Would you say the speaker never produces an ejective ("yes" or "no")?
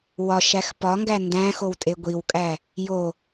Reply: no